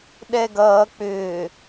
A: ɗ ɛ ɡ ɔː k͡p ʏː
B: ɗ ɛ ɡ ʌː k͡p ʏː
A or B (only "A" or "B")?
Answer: B